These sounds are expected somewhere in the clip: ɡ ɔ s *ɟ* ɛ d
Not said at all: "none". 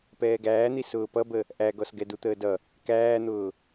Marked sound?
ɡ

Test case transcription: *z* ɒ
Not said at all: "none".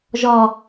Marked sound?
ʒ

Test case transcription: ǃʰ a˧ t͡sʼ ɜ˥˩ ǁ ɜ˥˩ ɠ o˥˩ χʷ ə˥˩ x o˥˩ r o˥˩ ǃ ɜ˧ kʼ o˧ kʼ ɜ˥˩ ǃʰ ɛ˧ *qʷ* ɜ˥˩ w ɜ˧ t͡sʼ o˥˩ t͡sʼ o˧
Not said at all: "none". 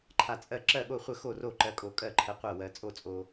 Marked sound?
qʷ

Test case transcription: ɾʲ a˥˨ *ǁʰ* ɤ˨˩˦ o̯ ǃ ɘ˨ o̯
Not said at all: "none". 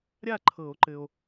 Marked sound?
ǃʰ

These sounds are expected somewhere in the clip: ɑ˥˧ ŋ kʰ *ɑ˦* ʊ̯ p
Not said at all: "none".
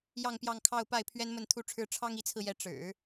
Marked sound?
ɑ˥˧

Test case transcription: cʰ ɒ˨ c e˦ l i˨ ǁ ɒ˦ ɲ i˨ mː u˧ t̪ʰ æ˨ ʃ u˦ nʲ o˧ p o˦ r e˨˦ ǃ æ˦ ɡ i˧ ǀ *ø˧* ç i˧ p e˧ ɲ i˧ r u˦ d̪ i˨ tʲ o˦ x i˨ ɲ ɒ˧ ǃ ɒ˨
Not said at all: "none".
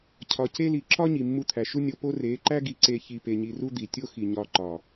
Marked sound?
e˧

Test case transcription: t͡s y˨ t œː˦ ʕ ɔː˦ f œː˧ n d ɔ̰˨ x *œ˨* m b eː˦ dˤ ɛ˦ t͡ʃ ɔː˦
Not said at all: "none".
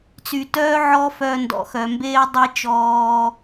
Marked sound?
œ˨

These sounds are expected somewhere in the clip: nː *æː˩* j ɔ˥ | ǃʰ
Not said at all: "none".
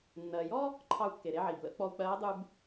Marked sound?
ɜː˩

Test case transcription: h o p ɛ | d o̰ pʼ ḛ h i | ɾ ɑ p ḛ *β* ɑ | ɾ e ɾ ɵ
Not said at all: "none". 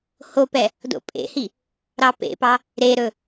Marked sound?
p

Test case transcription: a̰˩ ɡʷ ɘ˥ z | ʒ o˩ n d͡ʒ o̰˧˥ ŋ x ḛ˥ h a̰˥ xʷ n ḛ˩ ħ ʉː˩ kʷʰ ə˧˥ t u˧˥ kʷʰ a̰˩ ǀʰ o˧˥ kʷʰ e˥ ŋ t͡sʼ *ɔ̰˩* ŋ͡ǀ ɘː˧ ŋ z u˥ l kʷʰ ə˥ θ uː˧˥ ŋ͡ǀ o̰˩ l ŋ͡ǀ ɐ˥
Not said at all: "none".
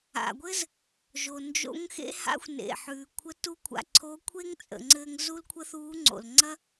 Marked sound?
ə̰˩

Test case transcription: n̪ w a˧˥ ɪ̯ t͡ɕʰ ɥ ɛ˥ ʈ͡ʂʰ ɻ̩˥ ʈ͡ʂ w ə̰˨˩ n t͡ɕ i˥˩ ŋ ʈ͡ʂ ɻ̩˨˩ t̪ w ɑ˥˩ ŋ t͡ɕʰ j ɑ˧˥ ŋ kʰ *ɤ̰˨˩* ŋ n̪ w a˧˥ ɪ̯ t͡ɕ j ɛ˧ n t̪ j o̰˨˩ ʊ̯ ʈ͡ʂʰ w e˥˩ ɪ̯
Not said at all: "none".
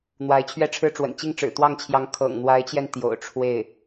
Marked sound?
ɤ̰˨˩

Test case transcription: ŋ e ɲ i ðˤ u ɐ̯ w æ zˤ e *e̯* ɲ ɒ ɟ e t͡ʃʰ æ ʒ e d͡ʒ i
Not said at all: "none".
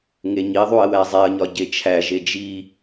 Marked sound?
ɐ̯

